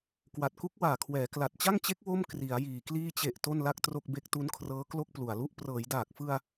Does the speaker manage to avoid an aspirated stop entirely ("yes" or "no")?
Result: no